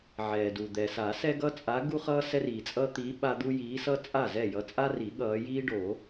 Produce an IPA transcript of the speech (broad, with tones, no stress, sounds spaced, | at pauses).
ʕ ɛː˩ d u˩ d̪ ɛ˩ s a˨˩˦ s ɛ˦ ɡ ʌ˦ t͡sʼ a˨˦ ɡ u˦ χ ʌː˦ s ɛ˦ r iː˩ t͡sʼ ʌː˦ t̪ iː˨˦ ɓ a˦ d̪ u˦ j iː˨˦ s ʌ˦ t͡sʼ a˥˩ z ɛ˥˩ j ʌ˨˦ t͡sʼ a˦ r i˨˩˦ ɠ ʌː˨˦ j iː˦ ɖ o˨˩˦